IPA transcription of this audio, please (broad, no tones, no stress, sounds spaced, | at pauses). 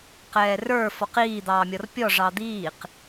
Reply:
q ɛː r ə˞ f ɔ q iː d̪ ɑː mʲ ɔ r pʲ ɔ ʐ ɑ d̪ iː q